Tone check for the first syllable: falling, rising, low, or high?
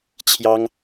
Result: high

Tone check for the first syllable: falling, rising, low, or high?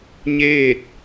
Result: falling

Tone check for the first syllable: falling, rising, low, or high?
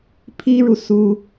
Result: high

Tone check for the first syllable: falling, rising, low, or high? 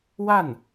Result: falling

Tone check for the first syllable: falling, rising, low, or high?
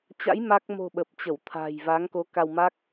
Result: rising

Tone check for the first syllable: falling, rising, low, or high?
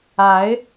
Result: rising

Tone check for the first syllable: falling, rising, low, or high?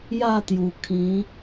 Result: falling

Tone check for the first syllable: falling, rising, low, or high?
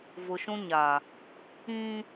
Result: low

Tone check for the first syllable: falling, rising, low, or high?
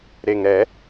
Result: low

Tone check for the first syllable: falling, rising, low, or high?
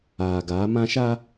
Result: low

